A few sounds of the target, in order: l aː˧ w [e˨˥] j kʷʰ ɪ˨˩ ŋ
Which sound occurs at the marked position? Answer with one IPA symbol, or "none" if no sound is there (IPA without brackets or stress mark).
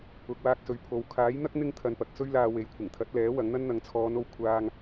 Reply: e˨˥